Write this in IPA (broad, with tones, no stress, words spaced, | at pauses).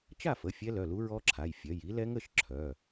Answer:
t͡ʃa˥˨fə˩˧˩ fʲɛ˦˥lœ˩˧˩lu˦˥ ɹɔ˦˥ǁʰa˩˧˩jfʲœ˩˧˩j i˦˥lɛ˦˥ŋ ə˩˧˩ʃ ǁʰœ˩˧˩